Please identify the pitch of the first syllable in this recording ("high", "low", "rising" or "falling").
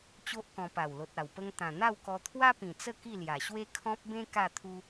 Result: high